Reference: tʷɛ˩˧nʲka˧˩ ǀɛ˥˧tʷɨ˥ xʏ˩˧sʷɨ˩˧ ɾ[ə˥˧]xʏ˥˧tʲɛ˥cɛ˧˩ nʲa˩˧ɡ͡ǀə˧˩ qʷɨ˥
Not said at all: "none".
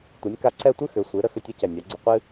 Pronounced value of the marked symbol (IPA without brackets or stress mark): ə˥˧